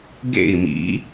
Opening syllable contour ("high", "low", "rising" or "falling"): falling